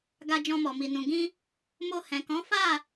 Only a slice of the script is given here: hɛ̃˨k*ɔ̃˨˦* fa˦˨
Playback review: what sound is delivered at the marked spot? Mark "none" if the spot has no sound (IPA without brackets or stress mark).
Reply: ɔ̃˨˦